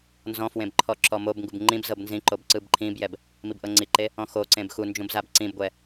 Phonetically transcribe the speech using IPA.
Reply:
nzɔ̃fwẽb ǃʰɔǁɔmobŋɡub ŋ͡ǃĩb zɤbnzĩǃob ǀɯbǃʰĩbjɛb | mibʔɤŋ͡ǀiǃe | ɔ̃xoǀẽb xund͡ʒũb zabǀĩbɡʷɛ

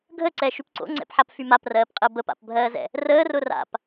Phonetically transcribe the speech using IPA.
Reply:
ɡʱəǀɛ ʃypǀo̰ŋ͡ǀɛ̰pħap fymaprɜːpqʼɜ bəpa̰pbʱɜːzɛ̰ | rəːrʊ ra̰p

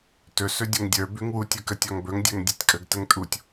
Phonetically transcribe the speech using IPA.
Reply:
tɵ sɵdʲɵŋdʲə˞ bʉŋwutʲ ə˞kətʲɒŋbɵŋ dʲə˞ŋdʲetʲkʼəɡ təŋtʼutʲ

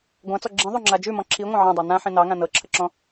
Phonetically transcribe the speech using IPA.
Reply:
ɡʷãt͡sɔ ɡ͡ǁĩðˤoŋ͡ǁa d͡ʒʉmɔ̃ ǁʰiŋʷɑ̃ ʕɔ̃dˤɑ nãħĩ nɑŋã nɤǁʰəǁɔ̃

